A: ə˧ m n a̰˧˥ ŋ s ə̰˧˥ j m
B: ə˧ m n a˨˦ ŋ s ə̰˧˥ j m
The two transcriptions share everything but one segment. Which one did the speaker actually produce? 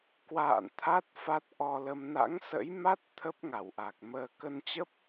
A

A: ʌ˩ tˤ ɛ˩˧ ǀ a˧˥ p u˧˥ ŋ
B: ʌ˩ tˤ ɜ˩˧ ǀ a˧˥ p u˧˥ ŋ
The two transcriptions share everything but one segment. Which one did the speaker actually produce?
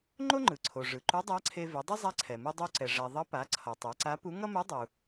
A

